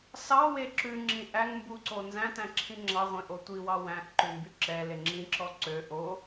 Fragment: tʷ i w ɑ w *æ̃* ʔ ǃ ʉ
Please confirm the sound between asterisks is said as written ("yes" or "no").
yes